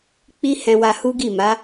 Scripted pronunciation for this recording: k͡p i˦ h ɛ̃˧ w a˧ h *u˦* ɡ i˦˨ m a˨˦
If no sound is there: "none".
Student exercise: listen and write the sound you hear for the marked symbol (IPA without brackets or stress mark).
u˦